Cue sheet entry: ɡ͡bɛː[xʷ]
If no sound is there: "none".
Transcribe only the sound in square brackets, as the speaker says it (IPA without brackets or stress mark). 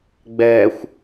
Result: xʷ